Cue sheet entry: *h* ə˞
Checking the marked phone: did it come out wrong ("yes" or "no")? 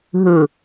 yes